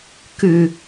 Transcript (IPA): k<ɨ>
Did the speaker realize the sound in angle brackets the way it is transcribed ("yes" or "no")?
no